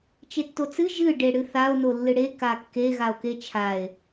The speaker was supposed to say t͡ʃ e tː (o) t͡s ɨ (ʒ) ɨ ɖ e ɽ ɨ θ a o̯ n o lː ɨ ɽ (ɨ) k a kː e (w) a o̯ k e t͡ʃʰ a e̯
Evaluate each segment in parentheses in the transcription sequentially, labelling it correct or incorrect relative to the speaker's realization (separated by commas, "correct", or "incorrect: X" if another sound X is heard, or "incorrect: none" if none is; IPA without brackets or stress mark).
correct, correct, incorrect: e, incorrect: ɣ